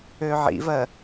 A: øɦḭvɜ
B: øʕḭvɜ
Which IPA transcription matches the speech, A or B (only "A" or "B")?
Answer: B